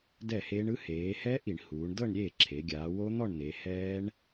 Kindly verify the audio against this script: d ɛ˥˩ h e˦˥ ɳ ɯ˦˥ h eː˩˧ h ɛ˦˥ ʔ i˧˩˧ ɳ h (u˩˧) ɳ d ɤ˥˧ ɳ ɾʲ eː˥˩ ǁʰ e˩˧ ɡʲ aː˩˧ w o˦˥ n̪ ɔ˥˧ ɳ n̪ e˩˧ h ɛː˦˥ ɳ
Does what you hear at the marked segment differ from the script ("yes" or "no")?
yes